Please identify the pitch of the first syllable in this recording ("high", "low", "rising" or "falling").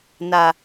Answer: low